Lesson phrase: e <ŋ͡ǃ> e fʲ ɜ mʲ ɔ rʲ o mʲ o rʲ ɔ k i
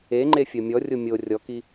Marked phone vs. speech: correct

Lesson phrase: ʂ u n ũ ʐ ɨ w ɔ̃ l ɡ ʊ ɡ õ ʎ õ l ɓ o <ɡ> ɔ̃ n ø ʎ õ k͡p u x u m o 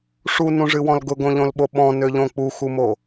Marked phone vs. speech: incorrect: ɓ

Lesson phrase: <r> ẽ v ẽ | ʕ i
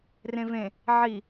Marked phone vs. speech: correct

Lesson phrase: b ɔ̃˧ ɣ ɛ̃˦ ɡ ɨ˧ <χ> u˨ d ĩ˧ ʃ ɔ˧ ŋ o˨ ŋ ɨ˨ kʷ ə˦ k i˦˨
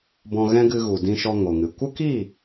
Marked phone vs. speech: incorrect: ɣ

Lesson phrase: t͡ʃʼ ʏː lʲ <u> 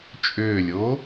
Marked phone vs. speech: incorrect: o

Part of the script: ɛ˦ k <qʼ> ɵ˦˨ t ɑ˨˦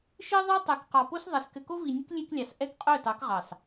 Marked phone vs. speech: correct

